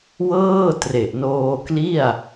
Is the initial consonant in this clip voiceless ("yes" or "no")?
no